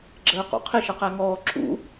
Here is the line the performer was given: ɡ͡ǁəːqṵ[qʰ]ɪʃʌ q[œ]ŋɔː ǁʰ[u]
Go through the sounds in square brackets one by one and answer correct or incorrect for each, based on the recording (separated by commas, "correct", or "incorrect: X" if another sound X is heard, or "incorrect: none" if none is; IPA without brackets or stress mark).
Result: correct, incorrect: æ, incorrect: ṵ